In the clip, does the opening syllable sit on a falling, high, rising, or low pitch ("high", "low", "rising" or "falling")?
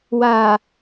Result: low